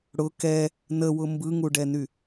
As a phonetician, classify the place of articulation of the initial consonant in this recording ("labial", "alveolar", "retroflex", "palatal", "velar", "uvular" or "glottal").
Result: retroflex